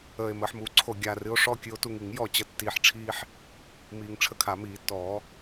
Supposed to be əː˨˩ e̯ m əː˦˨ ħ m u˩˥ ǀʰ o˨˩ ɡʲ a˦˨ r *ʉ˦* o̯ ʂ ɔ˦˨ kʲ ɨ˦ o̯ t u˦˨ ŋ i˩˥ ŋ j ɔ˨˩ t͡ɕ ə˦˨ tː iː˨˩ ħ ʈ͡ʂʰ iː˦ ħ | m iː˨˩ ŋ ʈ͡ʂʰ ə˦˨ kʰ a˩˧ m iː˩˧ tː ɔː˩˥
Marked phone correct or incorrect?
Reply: incorrect